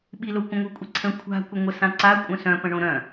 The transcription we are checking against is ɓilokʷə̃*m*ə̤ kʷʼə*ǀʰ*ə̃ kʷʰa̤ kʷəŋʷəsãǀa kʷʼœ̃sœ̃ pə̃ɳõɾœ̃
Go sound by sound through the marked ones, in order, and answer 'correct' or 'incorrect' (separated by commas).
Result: incorrect, correct